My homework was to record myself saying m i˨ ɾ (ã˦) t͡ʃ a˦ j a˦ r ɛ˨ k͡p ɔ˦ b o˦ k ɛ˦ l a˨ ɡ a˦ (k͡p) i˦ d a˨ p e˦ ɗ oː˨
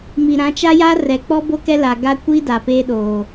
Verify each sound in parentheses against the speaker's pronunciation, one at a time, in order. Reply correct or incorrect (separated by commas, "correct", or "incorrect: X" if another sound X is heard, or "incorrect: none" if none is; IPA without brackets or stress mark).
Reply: incorrect: ã˨˦, incorrect: kʷ